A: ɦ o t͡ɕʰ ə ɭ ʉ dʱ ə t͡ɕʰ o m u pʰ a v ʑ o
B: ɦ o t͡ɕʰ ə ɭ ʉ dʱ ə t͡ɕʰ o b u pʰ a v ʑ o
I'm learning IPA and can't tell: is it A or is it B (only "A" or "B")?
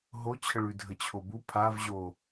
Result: B